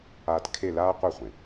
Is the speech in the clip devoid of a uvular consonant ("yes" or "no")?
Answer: no